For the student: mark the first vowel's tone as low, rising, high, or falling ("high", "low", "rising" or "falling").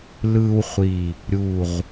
high